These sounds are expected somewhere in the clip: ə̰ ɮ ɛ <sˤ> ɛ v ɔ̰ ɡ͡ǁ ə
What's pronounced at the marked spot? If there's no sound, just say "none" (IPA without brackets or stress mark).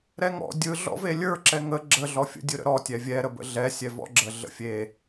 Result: sʲ